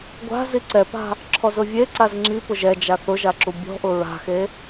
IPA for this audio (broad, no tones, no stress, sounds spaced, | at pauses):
ɡʷ a̤ z i ǀ ɛ p a̤ | ǁʰ ɔ z ʊ vʲ e ǀ a z ŋ͡ǁ i p ʊ ʒ ɛ d͡ʒ a θ ʊ ʒ a ǁ u bʲ ɔ̤ ʔ ʊ ɹ a̤ x e